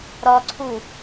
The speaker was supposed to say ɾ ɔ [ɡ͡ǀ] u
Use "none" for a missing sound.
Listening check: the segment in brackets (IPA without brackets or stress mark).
ǀʰ